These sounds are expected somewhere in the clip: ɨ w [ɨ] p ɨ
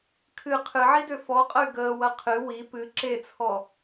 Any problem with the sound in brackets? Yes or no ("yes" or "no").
yes